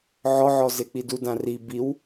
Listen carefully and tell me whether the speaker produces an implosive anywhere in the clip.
no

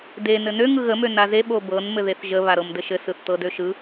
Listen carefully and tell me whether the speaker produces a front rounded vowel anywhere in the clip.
yes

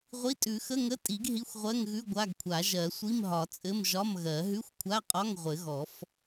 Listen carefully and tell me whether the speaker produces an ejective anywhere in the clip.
yes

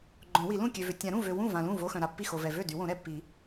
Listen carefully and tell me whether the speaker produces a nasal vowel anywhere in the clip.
yes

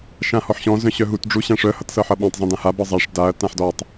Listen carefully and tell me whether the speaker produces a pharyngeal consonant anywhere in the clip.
yes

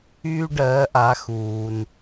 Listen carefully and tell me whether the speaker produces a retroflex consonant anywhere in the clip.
yes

